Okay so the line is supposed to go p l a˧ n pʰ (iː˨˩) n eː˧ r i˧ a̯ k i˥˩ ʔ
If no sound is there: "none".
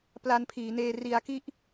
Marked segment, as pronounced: iː˩˦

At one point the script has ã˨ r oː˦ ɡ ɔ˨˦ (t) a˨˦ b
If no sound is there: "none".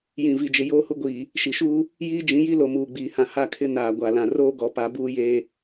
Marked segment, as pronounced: p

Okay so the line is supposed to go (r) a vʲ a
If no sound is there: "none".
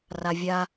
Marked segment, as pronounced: r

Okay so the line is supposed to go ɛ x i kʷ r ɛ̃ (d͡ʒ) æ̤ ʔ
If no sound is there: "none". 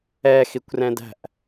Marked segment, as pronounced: d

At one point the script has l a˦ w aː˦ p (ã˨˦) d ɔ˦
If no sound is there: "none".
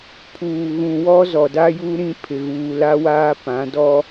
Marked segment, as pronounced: ã˨˦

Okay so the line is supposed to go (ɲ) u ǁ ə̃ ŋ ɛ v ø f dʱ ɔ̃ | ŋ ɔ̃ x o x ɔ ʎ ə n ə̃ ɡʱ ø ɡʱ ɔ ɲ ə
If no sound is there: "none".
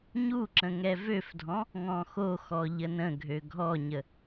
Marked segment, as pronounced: ɲ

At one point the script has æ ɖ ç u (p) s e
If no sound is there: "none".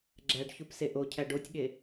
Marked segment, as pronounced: p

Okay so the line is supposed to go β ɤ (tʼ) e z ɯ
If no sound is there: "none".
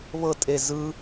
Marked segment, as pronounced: tʼ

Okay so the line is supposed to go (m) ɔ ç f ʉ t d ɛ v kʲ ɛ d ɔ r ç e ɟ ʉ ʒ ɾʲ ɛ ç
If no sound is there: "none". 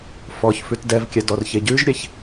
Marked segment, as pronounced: f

